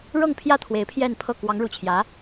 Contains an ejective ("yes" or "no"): no